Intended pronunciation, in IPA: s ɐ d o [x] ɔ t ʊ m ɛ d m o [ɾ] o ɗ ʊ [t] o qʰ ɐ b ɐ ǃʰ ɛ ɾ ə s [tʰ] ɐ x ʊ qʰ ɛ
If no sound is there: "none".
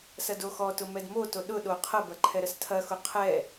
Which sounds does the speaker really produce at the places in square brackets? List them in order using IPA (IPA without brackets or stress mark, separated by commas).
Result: x, t, ɗ, tʰ